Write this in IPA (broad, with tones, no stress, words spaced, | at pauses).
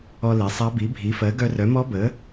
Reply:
ɔ˧le˩˥sˤa˧˥ bi˩˥bʱi˩˥fɜ˩˥ ɡœ˧rœ˩˥mɔ˧˥ bə˩˥